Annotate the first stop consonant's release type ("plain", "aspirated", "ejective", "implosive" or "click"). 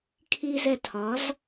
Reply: aspirated